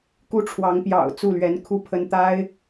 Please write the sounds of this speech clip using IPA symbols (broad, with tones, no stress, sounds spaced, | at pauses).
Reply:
k u˦ ʈ͡ʂʰ w ɑ˨˦ ŋ p j ɑ̰˨˩ ʊ̯ t͡s u˥˨ l ɥ ɛ˨˦ n kʰ u˥˨ pʰ ə˦ n t̪ a˦ ɪ̯